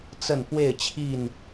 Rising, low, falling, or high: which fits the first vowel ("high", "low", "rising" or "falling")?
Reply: falling